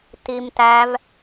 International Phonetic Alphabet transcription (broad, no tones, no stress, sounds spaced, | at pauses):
t i m t æ v